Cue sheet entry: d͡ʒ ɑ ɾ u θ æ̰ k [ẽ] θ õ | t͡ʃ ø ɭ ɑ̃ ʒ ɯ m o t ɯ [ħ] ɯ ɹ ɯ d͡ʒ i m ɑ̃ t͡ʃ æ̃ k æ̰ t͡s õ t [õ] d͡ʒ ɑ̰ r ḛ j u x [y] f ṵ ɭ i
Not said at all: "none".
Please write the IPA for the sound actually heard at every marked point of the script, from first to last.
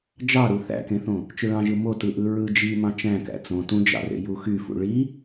ẽ, ʔ, ũ, y

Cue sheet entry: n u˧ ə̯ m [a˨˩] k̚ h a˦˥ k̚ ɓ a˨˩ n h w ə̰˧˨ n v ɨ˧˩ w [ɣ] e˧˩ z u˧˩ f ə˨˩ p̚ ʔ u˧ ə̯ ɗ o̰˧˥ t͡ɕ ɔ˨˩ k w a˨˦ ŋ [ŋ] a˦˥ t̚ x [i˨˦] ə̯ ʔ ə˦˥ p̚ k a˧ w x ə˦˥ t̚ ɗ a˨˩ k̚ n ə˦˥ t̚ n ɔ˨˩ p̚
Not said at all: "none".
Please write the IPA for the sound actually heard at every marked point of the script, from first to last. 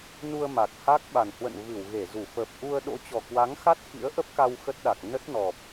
a˨˩, ɣ, x, ḭ˧˥

